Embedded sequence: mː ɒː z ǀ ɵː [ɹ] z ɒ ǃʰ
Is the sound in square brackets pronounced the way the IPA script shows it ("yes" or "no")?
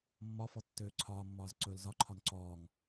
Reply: no